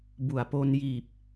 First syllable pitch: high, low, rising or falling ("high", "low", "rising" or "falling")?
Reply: low